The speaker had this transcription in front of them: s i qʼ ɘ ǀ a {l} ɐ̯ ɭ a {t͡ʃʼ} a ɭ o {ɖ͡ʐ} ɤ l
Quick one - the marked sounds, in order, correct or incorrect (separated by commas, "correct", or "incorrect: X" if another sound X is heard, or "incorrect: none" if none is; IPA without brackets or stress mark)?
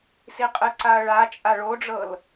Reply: incorrect: none, correct, correct